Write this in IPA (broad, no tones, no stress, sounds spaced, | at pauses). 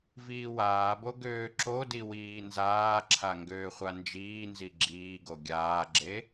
v iː w aː b o ɡ øː ǁ o d i w iː n z aː ǁʰ a ŋ ɡ øː χʷ a n d͡ʒ iː n z i ɡ͡ǁ iː ɡ o ɡʲ aː ɡ͡ǁ e